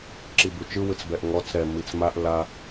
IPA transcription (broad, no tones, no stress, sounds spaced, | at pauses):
ǁ i b u t͡ʃ ɯ w ɯ t͡s b ɛ ʔ ŋ ɔ t͡s ɾ ɛ m i t͡s m a ʔ l a